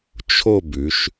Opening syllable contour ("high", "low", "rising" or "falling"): falling